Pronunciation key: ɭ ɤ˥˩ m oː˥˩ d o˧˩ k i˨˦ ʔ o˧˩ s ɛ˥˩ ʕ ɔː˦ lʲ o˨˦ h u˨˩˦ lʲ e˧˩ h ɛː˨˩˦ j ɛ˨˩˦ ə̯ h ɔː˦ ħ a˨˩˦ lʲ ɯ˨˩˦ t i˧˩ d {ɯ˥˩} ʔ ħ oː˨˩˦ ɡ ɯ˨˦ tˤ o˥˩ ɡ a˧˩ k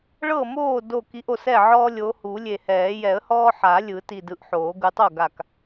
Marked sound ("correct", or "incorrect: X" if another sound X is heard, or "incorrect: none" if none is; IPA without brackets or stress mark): incorrect: ɯ˨˦